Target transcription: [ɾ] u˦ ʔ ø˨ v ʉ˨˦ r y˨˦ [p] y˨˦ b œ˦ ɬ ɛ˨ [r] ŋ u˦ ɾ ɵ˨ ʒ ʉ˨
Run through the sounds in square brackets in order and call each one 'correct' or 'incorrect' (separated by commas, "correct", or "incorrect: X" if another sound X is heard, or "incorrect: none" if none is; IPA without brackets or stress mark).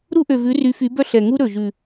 correct, incorrect: f, incorrect: none